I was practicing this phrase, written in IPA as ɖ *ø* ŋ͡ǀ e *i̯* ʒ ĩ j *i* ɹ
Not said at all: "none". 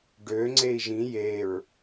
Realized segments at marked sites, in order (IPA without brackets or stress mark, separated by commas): ø, i̯, e